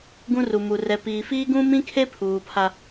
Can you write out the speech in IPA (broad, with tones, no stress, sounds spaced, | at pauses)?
ɡ ũ˦ r u˨ m u˨ r ɛ˨ p iː˨ f iː˦ ɡ ũ˦ m ĩ˦ kʰ e˦ pʰ uː˨ pʰ a˦